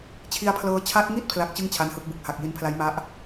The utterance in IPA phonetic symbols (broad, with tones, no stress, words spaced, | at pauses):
t͡ɕʰi˦˥a̯pʰlɤː˦˥ t͡ɕʰa˦˥t̚ŋi˥˩t̚ pʰla˦˥k̚t͡ɕɯ˥˩ŋ t͡ɕʰa˦˥nhɯ˦˥k̚bɯ˨˩k̚ ha˨˩k̚ji˧npʰla˦˥jma˦˥ʔ